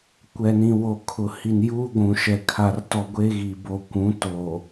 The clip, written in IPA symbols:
kʷ ɛ˨ n ĩ˨ w o˨ kʰ ʊ˨ h i˨ n j uː˦ ɡʷ ũ˨ ʃ ɛ˨ kʰ a˨ r t ɔ˨ ɡʷ e˦ ɣ i˨ b o˨ kʷ ũ˨˦ t o˨

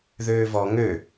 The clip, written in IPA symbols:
ð øː v ɔ ŋ ø

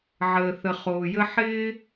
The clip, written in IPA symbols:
ʕ əː˨ θ ə˨ χ oː˨ j ə˧ ħ ɪː˦

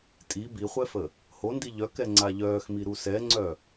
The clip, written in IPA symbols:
tʼ i b i χʷ ɛ f ə | h o n d i ʎ œ k ɛ ŋ͡ǀ a ʎ œː x m i ɾ u s ɛ ŋ͡ǀ œ

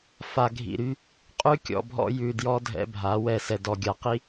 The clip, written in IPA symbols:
f a˨ ɡʱ ḭ˨ ɾ y˦ | qʼ ʉ˦ kʲ ɔ̰˨ bʱ ɔ̰˦ j ʉ˨ d j ɔ˦ dʱ ɛ̰˦ bʱ a˨˦ w ɛ˦˨ s ɛ˨ d ɔ˨ ɡʲ a˨ q i˦

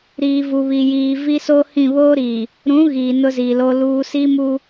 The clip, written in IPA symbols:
ɾ iː˨ v u˨ β i˨ j iː˨ v i˦ s o˦ h ĩ˦˨ β oː˦ ɾ iː˨ | ɾ ũ˨˦ ɣ iː˨ n ʊ˦ z i˨ l o˦ l uː˦ s i˦ m u˦

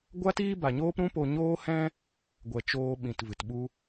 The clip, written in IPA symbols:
ɡʷ a˦ t iː˦ b a˨ ɲ oː˦ p ɾ ũ˦ p o˧ ɲ oː˦ h ɛ̃˦ | ɡʷ ɛ˨ t͡ʃ oː˧ ɓ ĩ˨ t v ɨ˨ t ɓ u˧

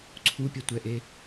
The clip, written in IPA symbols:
ǀʰ u pʲ ʌ tʷ ɛ ʔ e

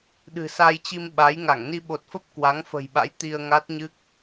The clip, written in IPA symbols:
ɗ ɨ̤˨˩ s a˧ j t͡ɕ i˧ m ɓ a˨˦ j ŋ a˧˩ ŋ n i˧ ɓ o˨˩ t̚ f ə˦˥ p̚ k w a˨˦ ŋ f ə̤˨˩ j ɓ a̰˧˥ j t̪ i˧ ə̯ ŋ a˦˥ t̚ ɲ ɨ˦˥ k̚

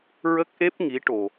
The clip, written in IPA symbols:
ɹ ə˦˥ k̚ ʔ e˦˥ p̚ ŋ i˧˥ ʈ o˧

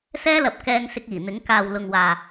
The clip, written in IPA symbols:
s ɛː˥ l ɐ˨ p̚ k ɛː˧ ŋ s ɪ˧ k̚ iː˨˩ n̪ ɪ˨˥ ŋ k aː˨ w l ʊ˨ ŋ w aː˨

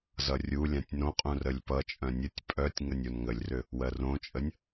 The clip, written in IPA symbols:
z ʌ rʲ u lʲ ã tʲ n õ qʼ ũ r ə lʲ p ʌ t͡ʃʼ œ̃ nʲ ə tʲ pʼ œ tʲ ŋ ə nʲ o n ŋ ə lʲ r ʏ | w ɜ r õ t͡ʃʼ ə nʲ

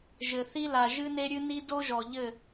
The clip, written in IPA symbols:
ʒ ɘ˨ θ i˦ l a˨ ʒ ɨ˦ n e˦ ɾʲ ɨ˦ n i˦ d o˦ ʒ ɔ˨ ʎ ɘ˦˨

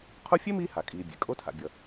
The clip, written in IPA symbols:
qʰ u˥ fʲ e˥ m iː˦ h a˩ kʼ iː˨ bʲ ḛ˩ kʼ o˦ tʰ a̰˨ bʲ ʌ˨

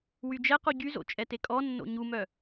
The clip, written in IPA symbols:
w y d͡ʒ ɛ q u ɟ y z o̰ t͡ʃʼ ɛ t e kʼ ɔ nː o̰ ɲ u m œ

